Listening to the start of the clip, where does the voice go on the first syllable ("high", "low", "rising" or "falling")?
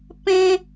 high